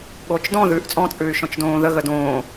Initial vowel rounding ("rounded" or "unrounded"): rounded